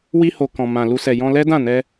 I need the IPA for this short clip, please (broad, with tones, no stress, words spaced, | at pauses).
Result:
wi˧ho˨kɔ̃˨ mã˨lu˧sɛ˨ jɔ̃˧lɛ˦dã˦˨nɛ˧